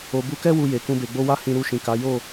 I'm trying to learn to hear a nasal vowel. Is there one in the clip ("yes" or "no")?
yes